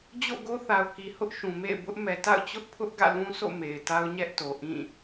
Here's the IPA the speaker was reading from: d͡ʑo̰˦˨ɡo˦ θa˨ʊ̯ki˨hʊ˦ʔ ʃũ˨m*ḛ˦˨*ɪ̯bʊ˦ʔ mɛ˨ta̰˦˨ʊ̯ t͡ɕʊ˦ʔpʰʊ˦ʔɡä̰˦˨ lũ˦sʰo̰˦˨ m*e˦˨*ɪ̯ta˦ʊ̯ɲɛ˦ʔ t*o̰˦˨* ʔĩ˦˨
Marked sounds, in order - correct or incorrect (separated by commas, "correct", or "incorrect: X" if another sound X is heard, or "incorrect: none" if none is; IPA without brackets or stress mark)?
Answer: correct, incorrect: e˨, incorrect: o˨